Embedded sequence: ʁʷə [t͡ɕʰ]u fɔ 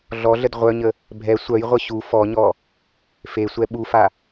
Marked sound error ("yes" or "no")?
yes